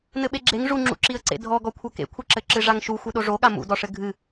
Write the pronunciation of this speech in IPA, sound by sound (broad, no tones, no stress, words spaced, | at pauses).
nɘɓeɡ͡ǁeŋ ʐuŋ͡ǁṵǁiə̯ǀḛ dʱɔɡɔkʷʰɐ kḛkʷʰɘ ǁɘǁɨʐaŋʃu xʷɨɗoʐoɠa mṵdɔʂɘ ɡʱɨ